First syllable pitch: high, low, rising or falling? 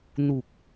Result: low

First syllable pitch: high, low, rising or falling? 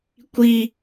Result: high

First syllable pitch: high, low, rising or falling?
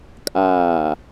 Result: low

